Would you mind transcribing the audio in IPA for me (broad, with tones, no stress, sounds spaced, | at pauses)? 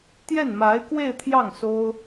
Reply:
t̪ j ɛ˥˩ n m a˧˥ ɪ̯ k w e˥˧ ɪ̯ t̪ʰ j ɑ˥˩ ŋ s o˥ ʊ̯